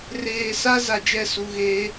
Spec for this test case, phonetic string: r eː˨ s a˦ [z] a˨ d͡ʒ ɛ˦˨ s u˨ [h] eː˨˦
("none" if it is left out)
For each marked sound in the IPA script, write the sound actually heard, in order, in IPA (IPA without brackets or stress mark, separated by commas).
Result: z, ɣ